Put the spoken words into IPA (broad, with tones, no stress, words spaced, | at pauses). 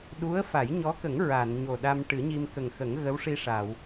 ɗu˧˥ə̯fa˨˩˦jɲɔ˧˥kə˨˩˦ŋ ɹa˨˩˨n ɲo˨˩ɗa˧m ʈɨ˨˩˦ɲi˧m kə˨˩ŋxə˨˩˦ŋ ɣə˧˥wʂi˧ʂa˨˩˨w